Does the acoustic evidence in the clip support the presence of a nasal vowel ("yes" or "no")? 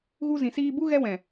yes